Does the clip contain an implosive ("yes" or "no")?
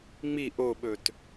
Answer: yes